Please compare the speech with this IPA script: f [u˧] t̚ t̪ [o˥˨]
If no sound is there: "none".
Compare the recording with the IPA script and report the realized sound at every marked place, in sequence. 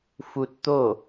u˧, o˥˨

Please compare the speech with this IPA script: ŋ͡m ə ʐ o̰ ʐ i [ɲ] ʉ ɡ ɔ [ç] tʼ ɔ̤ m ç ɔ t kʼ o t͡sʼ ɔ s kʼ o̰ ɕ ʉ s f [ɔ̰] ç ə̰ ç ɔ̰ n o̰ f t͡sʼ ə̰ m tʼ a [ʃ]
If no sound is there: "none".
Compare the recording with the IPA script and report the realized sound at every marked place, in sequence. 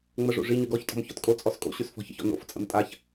ɲ, ç, ɔ̤, ç

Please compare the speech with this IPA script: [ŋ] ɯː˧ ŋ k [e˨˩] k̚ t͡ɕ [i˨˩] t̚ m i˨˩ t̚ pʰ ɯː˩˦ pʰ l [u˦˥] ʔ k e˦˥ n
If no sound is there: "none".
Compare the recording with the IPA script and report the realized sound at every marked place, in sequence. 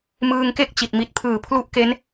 m, e˥˩, i˨˩, u˦˥

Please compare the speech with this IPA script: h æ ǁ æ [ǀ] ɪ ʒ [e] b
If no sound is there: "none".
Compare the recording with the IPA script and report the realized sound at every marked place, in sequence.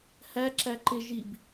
ǃ, i

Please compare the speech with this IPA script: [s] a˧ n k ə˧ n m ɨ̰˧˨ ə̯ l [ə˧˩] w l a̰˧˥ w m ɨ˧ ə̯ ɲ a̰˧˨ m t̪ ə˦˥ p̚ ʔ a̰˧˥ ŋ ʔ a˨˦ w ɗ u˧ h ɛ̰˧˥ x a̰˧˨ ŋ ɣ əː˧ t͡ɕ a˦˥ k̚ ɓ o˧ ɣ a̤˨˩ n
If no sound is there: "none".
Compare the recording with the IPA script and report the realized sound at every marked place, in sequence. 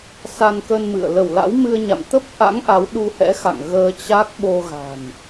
s, ə˧˩

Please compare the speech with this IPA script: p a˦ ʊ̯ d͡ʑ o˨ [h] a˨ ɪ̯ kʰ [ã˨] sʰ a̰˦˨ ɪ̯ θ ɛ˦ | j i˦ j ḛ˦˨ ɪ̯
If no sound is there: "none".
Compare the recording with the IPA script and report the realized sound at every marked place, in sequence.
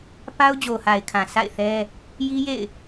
h, ã˨

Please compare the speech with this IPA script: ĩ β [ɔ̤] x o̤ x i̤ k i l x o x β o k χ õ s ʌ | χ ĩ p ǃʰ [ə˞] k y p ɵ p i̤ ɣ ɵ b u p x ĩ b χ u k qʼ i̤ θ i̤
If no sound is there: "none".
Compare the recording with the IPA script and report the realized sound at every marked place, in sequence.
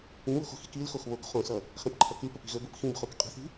o̤, ʌ

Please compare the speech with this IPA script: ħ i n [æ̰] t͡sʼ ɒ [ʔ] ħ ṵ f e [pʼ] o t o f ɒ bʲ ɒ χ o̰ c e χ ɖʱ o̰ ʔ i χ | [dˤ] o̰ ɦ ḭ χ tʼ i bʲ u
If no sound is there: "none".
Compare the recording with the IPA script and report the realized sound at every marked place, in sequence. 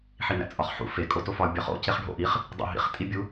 æ̰, χ, kʼ, dˤ

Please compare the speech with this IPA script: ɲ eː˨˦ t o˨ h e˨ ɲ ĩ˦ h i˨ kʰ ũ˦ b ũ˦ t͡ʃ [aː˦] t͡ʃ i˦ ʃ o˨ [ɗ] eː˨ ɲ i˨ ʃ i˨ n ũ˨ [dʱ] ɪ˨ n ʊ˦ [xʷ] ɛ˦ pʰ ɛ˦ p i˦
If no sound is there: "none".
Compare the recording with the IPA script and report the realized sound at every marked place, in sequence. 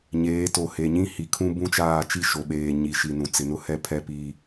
aː˦˨, ɓ, t͡s, h

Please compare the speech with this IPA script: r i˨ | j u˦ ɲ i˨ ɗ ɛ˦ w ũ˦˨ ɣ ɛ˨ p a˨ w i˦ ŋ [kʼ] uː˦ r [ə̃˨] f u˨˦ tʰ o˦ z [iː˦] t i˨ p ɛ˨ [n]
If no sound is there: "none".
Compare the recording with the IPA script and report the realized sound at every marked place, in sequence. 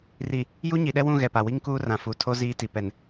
k, ã˨, iː˦, n

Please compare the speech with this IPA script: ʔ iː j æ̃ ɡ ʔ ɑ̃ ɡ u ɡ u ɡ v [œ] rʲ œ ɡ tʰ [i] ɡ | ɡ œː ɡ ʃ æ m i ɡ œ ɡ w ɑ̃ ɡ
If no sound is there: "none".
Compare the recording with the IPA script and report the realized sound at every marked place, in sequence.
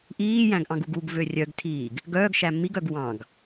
ø, iː

